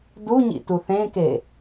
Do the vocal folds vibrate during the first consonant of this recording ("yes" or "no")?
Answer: yes